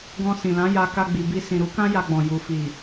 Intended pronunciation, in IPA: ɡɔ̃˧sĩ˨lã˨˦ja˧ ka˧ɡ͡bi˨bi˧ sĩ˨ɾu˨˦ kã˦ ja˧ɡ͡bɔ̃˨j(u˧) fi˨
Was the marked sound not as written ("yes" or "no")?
yes